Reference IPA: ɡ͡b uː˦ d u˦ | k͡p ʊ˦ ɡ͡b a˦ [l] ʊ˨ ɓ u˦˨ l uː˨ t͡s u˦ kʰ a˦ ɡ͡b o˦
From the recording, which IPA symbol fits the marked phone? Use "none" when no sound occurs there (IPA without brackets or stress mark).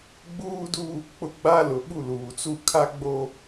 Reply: l